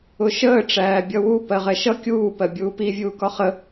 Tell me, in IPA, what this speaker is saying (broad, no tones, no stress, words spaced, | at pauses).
ʊʃəː ʈ͡ʂæːbʲʌwu pɜʁɛʃʌ kʲuː pɜbʲuːpi vʲuːkɒχə